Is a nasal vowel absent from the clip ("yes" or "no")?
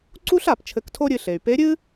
yes